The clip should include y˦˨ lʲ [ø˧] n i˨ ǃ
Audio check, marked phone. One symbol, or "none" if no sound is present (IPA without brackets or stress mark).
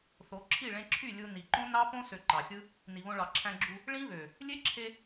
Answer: u˧